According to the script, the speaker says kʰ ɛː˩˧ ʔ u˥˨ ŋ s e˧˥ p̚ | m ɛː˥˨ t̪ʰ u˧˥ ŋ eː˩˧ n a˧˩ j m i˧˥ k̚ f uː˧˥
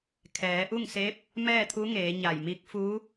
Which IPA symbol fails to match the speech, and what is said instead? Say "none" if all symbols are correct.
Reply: n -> ɲ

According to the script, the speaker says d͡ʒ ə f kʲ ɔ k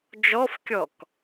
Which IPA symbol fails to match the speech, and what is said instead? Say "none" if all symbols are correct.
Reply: ə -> ɔ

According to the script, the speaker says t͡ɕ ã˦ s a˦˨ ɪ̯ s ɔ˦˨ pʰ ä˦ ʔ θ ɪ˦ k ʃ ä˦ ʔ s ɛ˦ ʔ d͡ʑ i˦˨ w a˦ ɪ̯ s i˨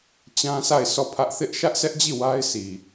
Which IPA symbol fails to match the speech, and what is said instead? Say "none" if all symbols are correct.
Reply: k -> ʔ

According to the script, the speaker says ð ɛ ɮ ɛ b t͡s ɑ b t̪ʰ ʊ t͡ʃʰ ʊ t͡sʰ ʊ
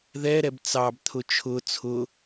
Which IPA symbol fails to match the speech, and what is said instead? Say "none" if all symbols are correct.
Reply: ɮ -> ɾ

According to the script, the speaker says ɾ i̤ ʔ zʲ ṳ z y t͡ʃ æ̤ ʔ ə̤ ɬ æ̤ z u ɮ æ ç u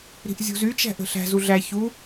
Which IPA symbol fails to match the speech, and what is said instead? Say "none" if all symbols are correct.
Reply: none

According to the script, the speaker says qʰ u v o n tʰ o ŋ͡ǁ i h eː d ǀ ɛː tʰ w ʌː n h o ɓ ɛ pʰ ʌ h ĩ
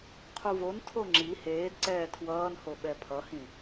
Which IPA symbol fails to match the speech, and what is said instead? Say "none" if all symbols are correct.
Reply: none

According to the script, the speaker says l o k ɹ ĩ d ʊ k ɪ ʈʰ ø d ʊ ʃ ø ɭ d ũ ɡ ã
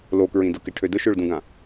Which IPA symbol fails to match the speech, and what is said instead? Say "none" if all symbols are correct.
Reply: none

